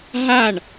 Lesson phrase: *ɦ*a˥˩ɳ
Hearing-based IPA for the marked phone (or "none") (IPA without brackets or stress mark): ɦ